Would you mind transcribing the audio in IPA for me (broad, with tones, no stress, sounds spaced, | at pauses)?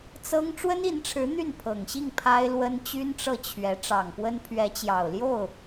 t͡s ɤ˥ ŋ ʈ͡ʂ w ə˥ n i˧˥ n ʈ͡ʂʰ ɻ̩˧˥ n̪ y˥˩ n pʰ ɤ˨˩ ŋ ɕ i˥˩ ŋ pʰ a˥ ɪ̯ l w ə˥ n t͡ɕ y˥ n ʈ͡ʂ ɤ˥˩ t͡ɕʰ ɥ ɛ˧˥ ʈ͡ʂ ɑ˨˩ ŋ p w ə˥ n pʰ ɥ ɛ˧˥ t͡ɕ j ɑ˨˩ ʊ̯ l j o˥˩ ʊ̯